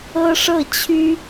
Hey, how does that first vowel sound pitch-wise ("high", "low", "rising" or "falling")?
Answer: high